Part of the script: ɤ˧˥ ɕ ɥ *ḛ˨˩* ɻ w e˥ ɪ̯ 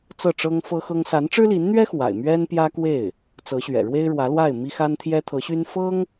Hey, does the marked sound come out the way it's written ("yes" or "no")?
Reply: no